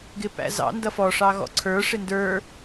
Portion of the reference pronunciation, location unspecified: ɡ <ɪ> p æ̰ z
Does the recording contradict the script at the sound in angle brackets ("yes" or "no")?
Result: no